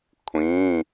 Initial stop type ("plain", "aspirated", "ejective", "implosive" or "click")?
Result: aspirated